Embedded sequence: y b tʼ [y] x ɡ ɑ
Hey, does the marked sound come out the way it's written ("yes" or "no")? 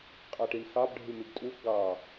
no